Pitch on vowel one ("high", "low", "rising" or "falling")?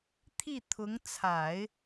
falling